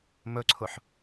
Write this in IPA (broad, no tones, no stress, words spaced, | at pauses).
mɵǀʰʊħ